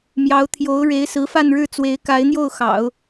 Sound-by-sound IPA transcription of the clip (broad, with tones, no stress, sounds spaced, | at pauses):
m j ɑ˧˥ ʊ̯ t̪ʰ j o˧˥ ʊ̯ ɻ e˧˥ ɪ̯ s ɹ̩˧˥ f a˥˧ n ɻ ɻ̩˥˩ t͡s w e˧˥ ɪ̯ k a˧˥ ɪ̯ n̪ j o˥˩ ʊ̯ x ɑ̰˨˩˦ ʊ̯